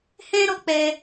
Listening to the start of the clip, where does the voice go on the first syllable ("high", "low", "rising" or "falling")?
high